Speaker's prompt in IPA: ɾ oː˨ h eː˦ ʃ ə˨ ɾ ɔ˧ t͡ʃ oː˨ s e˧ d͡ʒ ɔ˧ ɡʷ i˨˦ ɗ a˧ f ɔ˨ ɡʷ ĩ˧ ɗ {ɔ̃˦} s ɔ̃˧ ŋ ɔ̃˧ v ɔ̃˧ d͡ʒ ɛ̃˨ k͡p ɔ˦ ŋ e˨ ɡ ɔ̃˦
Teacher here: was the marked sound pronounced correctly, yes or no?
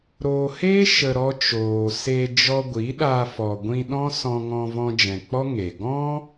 yes